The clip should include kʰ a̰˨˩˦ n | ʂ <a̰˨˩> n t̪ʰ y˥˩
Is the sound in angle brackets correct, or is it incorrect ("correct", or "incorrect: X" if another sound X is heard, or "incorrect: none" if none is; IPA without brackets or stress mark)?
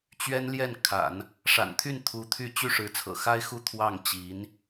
correct